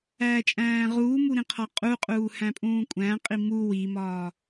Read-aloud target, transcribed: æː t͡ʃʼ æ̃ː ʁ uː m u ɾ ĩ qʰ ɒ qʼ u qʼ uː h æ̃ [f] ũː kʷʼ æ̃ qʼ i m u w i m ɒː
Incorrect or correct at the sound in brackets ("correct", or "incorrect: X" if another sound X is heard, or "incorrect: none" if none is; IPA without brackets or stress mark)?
incorrect: pʼ